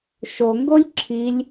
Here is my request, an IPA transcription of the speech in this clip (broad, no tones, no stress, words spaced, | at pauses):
ʃoŋɡolʲ ǁʰilʲ